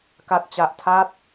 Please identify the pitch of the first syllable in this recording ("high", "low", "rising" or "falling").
low